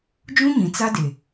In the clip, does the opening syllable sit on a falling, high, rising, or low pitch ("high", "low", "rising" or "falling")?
high